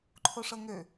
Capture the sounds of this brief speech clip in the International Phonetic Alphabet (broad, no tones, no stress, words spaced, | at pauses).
ǃʰoʂɤŋø